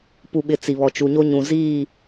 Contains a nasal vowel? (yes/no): yes